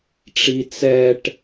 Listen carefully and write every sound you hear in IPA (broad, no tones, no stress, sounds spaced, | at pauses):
ʈ͡ʂ i t͡s ɛ ʈ